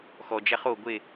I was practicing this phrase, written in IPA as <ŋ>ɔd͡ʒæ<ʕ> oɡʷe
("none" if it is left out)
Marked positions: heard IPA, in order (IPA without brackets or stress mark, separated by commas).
x, χ